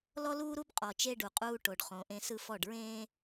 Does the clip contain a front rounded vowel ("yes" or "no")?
no